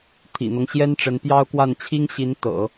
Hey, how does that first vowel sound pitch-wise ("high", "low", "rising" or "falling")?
low